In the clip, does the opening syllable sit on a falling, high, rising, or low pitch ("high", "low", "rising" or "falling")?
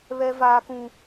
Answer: high